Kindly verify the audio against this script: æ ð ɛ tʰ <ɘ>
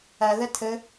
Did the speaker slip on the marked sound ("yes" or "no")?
no